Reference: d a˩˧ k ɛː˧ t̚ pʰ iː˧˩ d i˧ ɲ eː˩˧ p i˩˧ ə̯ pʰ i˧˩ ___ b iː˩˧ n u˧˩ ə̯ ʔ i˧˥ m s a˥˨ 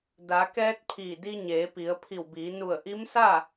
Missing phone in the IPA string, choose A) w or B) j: A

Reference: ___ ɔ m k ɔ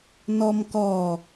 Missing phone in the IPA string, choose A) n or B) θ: A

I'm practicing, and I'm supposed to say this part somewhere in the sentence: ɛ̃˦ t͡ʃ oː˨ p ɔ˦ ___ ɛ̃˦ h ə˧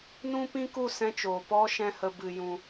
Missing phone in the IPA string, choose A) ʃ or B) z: A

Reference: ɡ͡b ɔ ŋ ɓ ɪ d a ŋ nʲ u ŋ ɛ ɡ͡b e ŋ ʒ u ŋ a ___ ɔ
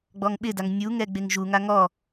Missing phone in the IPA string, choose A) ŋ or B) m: A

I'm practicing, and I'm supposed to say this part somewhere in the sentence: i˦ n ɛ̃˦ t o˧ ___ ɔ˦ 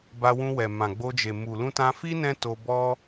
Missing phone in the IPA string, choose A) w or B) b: B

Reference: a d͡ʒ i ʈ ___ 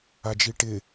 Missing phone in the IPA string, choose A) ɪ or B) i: A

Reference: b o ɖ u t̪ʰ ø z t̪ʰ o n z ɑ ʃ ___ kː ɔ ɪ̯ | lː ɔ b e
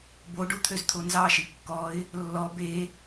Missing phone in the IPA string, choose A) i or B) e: A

